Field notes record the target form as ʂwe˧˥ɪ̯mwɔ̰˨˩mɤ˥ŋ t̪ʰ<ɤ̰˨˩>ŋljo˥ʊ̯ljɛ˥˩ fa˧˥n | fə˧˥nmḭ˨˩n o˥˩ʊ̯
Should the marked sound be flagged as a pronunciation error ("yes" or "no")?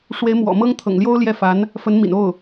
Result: no